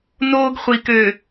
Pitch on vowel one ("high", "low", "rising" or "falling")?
high